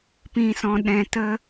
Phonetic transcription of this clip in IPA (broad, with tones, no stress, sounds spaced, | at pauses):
p ĩ˨ s ɔ̃˨ ɗ ɛ̃˨ t ə˧